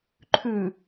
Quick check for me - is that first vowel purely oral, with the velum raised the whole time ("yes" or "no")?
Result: yes